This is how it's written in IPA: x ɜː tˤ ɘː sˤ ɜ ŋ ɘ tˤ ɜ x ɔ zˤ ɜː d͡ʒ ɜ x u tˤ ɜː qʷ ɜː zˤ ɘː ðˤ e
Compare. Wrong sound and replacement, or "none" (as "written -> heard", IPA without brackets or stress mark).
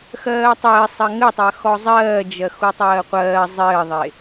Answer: none